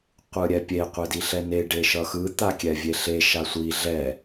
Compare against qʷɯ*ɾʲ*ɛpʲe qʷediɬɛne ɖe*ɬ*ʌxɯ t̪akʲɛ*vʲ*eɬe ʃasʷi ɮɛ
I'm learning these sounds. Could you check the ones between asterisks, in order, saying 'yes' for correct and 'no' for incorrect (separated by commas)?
yes, no, yes